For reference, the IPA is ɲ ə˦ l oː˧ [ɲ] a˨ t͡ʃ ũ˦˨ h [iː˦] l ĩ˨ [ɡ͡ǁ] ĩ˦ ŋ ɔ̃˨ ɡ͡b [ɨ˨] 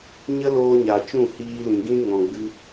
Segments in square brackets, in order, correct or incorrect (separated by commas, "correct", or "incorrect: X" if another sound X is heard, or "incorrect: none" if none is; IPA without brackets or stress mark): correct, incorrect: iː˧, incorrect: ɡ, incorrect: ɨ˧